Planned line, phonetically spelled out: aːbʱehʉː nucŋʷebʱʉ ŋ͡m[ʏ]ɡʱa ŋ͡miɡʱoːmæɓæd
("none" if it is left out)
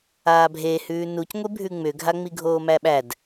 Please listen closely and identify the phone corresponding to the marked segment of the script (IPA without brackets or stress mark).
ʏ